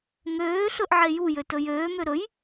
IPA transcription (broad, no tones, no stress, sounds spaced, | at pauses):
ŋ øː ɬ ɵ ʔ ʕ e j u j ø t ɵ j øː m ø ɾ ɵ j